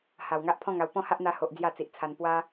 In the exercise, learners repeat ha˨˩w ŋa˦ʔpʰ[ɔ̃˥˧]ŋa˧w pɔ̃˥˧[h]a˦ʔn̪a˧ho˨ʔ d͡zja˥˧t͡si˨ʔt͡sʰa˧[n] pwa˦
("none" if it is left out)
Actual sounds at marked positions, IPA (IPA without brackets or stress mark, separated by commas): ɔ̃˥˧, h, n